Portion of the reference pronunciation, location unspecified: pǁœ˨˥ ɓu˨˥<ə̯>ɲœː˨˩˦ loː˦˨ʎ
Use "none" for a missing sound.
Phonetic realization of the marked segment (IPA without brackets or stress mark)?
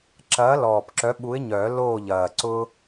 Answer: ɪ̯